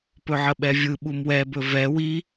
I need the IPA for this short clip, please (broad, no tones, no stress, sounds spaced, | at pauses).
p ɵ ʕ ə ɓ ɛ vʲ ɯ ɓ u m w ɛ b ɵ v ɛ w i